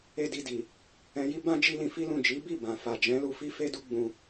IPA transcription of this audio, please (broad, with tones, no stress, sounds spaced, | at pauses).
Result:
e˦ d i˧ d i˨ | ɛ̃˧ j i˦ b ã˦ d͡ʒ i˦ l ĩ˧ f i˦ l ũ˦˨ d͡ʒ i˨˦ b i˦˨ b ã˨ f a˨ d͡ʒ ɛ̃˨˦ l u˧ f i˦ f e˦ d u˦ ɡ͡b ũ˧